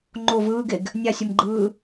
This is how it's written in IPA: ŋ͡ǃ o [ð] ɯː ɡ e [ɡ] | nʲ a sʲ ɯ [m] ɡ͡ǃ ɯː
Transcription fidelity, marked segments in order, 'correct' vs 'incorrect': incorrect: v, correct, correct

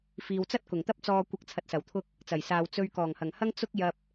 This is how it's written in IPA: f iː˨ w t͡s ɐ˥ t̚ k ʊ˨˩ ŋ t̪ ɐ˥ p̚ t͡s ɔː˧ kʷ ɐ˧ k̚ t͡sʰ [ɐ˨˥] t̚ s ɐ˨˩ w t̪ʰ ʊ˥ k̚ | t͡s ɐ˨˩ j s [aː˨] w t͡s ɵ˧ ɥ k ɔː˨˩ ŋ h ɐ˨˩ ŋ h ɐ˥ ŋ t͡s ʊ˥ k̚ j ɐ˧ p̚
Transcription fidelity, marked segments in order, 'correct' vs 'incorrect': incorrect: ɐ˧, correct

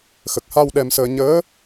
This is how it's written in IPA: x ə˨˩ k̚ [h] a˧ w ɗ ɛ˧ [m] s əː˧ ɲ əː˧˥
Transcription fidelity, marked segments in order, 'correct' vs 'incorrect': correct, correct

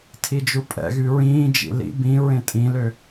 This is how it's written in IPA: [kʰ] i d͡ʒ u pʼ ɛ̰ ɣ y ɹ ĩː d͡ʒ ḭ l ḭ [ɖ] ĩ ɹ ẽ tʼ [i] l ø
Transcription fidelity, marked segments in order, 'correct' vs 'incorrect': incorrect: tʰ, incorrect: b, incorrect: ĩ

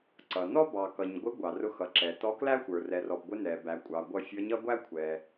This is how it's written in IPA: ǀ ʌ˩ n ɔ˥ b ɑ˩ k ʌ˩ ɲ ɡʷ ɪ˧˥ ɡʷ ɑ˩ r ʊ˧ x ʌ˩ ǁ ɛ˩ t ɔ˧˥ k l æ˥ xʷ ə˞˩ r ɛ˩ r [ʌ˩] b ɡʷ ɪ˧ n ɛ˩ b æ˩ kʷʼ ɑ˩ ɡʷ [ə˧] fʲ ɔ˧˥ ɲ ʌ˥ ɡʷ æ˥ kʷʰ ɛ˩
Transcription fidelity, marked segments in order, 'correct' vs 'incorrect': incorrect: ɔ˩, incorrect: ʌ˧

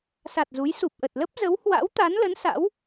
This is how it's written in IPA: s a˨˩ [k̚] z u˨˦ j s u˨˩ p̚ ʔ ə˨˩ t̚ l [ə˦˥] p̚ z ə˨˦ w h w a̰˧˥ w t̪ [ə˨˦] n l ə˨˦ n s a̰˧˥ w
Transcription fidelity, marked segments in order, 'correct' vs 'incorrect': incorrect: t̚, correct, incorrect: a˨˦

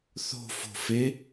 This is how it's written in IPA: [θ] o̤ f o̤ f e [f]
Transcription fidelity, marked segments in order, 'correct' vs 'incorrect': correct, incorrect: none

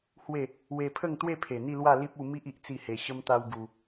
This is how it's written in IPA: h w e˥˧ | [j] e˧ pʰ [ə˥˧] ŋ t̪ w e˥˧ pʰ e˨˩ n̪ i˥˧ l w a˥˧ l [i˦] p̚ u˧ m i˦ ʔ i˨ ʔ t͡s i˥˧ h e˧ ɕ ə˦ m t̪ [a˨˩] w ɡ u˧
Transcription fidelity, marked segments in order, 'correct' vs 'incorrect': incorrect: w, correct, correct, incorrect: a˦

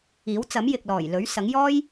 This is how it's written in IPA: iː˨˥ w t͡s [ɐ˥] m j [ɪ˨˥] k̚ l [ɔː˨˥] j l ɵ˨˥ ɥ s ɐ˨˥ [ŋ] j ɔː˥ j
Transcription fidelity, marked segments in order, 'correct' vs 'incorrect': incorrect: ɐ˨˥, incorrect: ɪ˨, incorrect: ɔː˨˩, correct

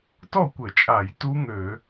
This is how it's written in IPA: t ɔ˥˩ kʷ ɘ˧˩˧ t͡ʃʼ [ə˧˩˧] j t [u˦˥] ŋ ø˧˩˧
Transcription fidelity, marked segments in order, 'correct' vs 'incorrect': incorrect: a˧˩˧, correct

